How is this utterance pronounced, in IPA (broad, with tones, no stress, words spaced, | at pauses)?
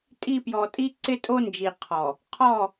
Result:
tʼi˦˨ pjɔ˨ tʼi˦ ǀɪ˦tʼo˦nd͡ʒi˨ qʰɔ˨ | qʰɔ˦˨